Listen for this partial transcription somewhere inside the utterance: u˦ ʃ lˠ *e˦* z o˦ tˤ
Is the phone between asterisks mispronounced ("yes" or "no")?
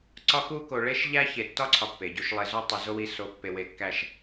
no